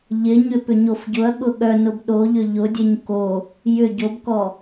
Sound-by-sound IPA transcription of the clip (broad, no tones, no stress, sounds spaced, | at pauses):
ʎ ɪ ɲ ʏ p ʏ ɲ o f ɟ ʊ ɐ̯ ɠ ʊ ɠ œ n ʊ b ɗ o ʎ ʏ ʎ ʊ dʲ e ɲ k o | j ʏ ɟ o b k ɔ